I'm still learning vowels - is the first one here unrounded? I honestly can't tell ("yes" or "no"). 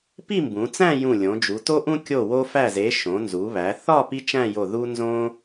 yes